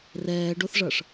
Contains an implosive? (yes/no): no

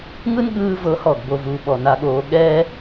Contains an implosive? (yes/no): yes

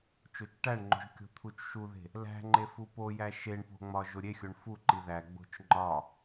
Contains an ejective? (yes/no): no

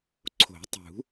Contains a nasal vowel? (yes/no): no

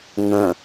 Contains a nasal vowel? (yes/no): yes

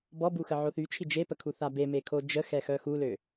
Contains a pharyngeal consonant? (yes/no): yes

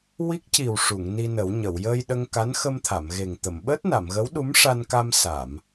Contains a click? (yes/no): no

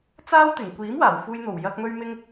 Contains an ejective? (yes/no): no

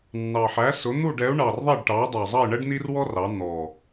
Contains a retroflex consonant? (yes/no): yes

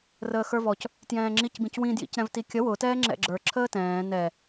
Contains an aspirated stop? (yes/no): yes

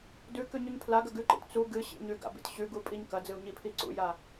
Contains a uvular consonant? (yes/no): no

